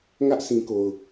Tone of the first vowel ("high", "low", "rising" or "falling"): high